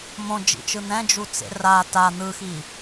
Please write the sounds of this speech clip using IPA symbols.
m õ d͡ʒ ḭ t͡ʃ ɯ n̪ ɛ̃ d͡ʒ u t͡s ḛ r a t a n̪ ɯ x i

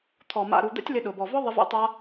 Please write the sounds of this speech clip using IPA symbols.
t̪ʰ ɔ˨ m a̰˨ ɾ u˨ d̪ ɛ̰˦ tʲ l ɪ˧ ɗ ʊ˨ b ɔ˨ v ɔ˦ ðˤ ɪ˧ v ɛ̰˦ tˤ a˦

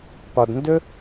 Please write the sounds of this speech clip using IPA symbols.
p ɒ˧ d n d ɵ˥

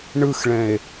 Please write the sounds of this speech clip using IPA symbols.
ɳ ɯ x ɭ ɛ̃ e̯

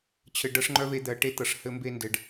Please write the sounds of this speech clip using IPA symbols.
t͡ɕʰ ɘ˧ ɖ ɤ˦ ʂ ŋ͡ǃ œ˦ v e˧ d̪ ɜ˨ ʈ e˦ t̪ ɤ˨ ʂ h ɘ˧ m b e˧ n d ɘ˨ ɖ

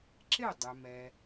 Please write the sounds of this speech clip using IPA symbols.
ǁ ɪ˥˩ dˤ ʏ˩ m ɛ˩

